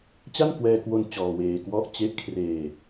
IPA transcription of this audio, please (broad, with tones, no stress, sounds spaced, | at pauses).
t͡ɕ a˥˩ n k w ɛː˧ k w o˧ n t͡ɕ ɔː˧ w eː˧ k w ɔ˥˩ ʔ t͡ɕ e˦˥ ʔ kʰ r eː˧